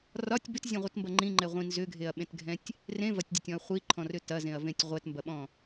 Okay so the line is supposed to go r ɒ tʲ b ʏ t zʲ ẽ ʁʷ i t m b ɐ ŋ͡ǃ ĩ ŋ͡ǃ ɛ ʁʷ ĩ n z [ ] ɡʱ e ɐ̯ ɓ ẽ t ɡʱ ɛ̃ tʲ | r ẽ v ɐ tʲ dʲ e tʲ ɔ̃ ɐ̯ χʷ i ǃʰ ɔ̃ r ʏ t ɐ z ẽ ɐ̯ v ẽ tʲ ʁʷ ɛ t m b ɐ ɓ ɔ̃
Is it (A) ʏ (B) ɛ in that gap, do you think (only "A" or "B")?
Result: A